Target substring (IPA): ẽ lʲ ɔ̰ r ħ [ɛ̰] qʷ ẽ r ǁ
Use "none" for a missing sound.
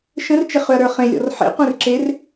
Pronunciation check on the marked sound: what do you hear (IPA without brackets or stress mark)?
ḛ